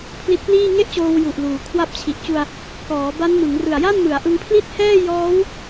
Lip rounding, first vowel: unrounded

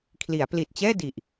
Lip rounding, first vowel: unrounded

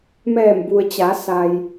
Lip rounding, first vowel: unrounded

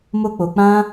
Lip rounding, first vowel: rounded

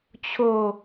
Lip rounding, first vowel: rounded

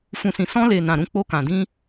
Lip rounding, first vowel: rounded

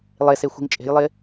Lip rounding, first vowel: unrounded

